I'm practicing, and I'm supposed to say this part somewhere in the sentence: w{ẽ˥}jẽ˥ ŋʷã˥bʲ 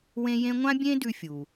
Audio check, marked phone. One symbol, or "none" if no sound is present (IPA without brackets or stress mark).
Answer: ẽ˥